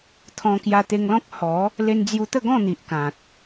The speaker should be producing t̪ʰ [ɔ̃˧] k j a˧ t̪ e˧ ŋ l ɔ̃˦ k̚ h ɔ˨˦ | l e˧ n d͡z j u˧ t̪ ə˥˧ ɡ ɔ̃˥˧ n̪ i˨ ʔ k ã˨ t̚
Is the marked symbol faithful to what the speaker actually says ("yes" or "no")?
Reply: yes